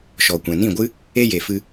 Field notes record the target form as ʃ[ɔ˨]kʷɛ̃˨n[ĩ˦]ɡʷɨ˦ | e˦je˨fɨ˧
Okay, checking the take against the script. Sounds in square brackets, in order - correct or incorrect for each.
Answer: correct, incorrect: ĩ˦˨

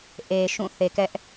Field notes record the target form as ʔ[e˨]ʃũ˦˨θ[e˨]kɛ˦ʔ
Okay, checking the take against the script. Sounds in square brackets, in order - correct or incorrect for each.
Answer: correct, correct

